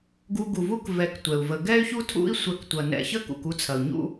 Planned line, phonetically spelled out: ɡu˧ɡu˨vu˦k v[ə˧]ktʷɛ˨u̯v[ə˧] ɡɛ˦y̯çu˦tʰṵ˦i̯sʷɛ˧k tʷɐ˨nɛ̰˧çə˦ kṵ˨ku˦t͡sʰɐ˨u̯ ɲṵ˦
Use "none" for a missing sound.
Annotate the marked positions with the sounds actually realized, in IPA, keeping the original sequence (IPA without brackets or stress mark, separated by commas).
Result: ɛ˧, ə˧